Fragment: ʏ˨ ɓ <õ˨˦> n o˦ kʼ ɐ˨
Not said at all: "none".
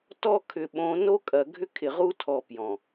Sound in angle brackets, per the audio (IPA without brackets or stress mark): õ˨˦